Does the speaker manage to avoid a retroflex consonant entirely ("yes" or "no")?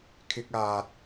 yes